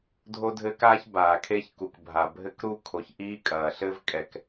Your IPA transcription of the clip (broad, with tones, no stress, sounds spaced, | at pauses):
dʱ o˦ dʱ ɘ˦ k aː˦ ç b aː˨ kʰ e˦ ç k u˨ k bʱ a˨ bʱ ɘ˦ k ɾ u˦ kʰ o˨ ç ʔ iː˦ kʼ ɐː˨ ɬ ɘ˦ v kʼ ɛ˨ k